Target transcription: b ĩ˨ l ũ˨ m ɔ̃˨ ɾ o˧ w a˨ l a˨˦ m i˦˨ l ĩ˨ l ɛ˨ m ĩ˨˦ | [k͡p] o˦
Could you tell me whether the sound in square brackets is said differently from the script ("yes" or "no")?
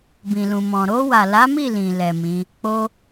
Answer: no